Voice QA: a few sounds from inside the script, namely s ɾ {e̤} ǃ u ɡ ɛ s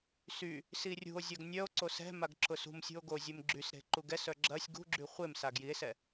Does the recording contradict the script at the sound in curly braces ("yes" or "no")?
no